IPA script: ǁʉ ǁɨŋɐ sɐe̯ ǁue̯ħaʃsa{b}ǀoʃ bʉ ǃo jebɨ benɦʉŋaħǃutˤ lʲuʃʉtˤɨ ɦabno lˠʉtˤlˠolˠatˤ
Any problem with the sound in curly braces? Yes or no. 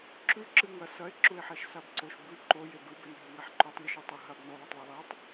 no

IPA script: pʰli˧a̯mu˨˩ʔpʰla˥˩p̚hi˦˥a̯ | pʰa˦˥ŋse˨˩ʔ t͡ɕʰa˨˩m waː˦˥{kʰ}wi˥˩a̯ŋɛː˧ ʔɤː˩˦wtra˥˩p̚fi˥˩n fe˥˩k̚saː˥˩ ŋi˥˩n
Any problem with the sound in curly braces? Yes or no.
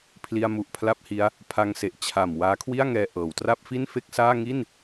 no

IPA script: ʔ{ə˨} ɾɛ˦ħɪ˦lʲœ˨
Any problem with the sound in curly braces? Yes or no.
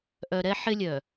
yes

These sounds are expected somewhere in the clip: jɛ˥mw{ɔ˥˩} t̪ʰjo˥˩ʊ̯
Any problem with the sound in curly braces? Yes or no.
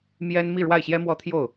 yes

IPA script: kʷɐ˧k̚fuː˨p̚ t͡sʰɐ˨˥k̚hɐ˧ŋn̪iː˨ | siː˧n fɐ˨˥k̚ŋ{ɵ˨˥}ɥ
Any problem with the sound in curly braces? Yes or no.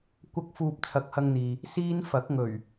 yes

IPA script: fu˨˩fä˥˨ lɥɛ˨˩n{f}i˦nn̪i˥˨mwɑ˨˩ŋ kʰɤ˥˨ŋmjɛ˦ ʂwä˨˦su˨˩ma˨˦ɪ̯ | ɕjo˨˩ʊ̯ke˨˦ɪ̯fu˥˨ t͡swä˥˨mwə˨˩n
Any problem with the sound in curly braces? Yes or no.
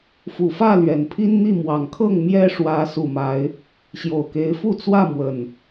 yes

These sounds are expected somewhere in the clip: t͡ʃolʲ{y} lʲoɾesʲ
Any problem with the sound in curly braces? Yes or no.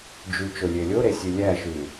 yes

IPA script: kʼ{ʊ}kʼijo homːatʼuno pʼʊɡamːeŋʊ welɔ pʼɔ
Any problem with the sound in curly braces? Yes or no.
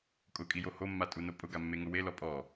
no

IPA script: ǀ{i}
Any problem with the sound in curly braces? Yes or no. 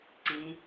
yes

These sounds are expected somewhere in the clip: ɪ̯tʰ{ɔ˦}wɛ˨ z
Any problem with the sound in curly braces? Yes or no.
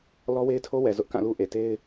yes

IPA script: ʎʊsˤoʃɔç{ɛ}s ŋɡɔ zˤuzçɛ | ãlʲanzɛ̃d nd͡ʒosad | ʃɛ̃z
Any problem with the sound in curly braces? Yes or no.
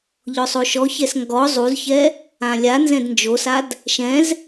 no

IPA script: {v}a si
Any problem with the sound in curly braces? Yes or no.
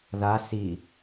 yes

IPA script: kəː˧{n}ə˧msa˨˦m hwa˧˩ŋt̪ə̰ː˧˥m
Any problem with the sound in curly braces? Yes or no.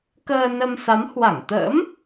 no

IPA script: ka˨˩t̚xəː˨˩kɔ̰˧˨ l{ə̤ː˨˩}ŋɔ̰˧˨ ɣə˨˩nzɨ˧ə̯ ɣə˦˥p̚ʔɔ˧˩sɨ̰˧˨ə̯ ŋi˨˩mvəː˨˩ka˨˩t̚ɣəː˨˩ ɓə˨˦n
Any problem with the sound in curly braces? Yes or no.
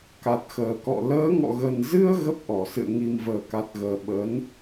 yes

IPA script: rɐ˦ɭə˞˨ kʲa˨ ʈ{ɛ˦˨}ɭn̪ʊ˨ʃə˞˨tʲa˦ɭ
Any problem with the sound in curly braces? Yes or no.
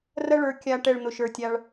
no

